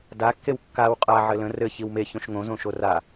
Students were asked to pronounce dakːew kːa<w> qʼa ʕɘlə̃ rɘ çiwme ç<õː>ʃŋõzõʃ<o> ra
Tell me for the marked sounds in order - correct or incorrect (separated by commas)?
correct, incorrect, correct